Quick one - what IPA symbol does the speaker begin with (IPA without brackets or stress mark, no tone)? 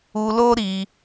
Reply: u